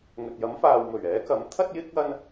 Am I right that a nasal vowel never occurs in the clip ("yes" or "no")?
yes